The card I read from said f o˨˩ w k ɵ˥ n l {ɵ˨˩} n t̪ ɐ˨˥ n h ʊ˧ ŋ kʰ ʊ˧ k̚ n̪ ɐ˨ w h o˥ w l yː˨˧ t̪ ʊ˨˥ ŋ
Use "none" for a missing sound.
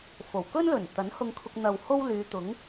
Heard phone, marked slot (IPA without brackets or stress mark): ɵ˨˩